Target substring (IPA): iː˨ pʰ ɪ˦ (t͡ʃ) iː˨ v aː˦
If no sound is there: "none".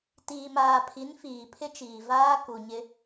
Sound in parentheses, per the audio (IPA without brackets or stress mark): t͡ʃ